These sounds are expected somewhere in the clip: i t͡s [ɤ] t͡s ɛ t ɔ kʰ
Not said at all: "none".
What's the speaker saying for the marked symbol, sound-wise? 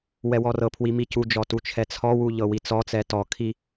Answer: ɔ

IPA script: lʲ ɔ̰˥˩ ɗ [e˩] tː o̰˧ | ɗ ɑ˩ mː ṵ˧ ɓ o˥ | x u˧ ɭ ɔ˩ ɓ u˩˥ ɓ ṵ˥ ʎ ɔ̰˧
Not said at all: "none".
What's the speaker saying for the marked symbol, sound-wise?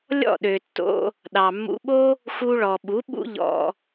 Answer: ø˩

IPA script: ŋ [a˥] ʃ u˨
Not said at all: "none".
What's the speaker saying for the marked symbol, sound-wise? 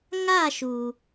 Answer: a˥˧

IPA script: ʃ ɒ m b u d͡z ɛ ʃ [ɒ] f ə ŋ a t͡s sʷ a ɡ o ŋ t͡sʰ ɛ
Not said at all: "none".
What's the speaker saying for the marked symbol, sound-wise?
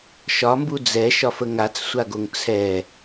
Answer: ɒ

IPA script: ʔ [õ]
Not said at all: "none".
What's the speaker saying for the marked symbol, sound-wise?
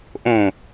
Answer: õ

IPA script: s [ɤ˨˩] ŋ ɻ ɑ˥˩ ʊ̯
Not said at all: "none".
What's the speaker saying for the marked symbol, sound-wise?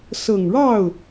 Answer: ɤ˨˩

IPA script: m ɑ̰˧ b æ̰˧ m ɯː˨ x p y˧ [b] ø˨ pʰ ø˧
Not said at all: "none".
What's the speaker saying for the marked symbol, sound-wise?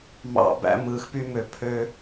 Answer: m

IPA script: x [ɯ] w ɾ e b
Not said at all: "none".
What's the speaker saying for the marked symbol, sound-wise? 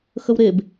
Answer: ə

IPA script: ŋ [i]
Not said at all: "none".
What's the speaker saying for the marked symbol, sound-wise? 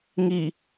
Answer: i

